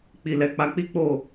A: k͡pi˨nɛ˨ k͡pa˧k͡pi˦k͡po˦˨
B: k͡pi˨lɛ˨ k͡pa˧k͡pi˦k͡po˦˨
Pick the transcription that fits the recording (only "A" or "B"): B